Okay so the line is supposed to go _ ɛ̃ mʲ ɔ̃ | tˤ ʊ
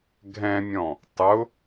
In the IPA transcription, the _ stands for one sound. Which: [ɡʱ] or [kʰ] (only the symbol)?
ɡʱ